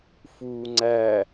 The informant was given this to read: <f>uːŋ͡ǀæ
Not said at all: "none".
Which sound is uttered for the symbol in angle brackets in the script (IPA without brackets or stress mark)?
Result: f